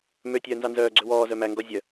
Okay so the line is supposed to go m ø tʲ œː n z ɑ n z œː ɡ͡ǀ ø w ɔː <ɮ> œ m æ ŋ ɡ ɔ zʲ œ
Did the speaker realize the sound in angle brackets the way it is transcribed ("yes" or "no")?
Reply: no